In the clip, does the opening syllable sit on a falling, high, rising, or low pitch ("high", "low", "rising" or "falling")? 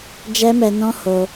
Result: high